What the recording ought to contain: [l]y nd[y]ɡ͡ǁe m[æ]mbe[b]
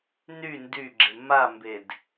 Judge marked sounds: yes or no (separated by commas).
no, yes, no, no